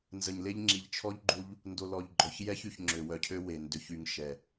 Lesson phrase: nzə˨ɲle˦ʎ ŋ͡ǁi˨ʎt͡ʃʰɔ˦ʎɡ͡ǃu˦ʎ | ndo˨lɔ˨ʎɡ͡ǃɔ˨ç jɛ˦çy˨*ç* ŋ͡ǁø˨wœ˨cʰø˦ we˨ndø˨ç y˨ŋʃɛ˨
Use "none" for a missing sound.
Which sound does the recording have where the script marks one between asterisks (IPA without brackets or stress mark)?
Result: ç